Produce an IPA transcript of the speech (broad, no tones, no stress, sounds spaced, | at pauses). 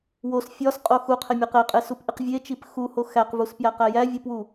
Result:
w o s fʲ ɒ s qʼ o x u qʰ e mʲ e q e qʼ e s u p ʔ i q vʲ e t͡ʃ i p x u h o x æ q v u s p j æ q æ j æ vʲ u p w u